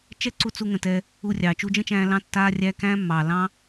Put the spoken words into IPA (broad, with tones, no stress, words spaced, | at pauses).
t͡ʃɛ˦ǀu˧t͡su˧ ŋə̃˧tɛː˦ | u˧rʲɑː˨ t͡ʃu˧d͡ʒə̃˦t͡ʃæ̃ː˧ lɑ̃˦ tːaː˦rʲæ˦ kæ̃ː˦mːɑː˨ lɑ̃ː˦